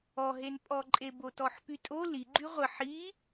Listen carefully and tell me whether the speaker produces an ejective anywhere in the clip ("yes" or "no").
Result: yes